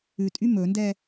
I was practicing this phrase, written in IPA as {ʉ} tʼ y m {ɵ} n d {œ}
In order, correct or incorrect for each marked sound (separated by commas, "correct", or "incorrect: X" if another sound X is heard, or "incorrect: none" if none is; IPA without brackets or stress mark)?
correct, correct, incorrect: ɛ